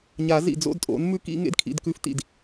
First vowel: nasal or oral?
oral